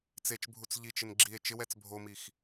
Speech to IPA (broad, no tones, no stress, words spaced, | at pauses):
t͡set͡ʃbʱut͡s ʎit͡ʃɪn ɡ͡ǁie̯ t͡ʃɪwɛt͡s bʱomix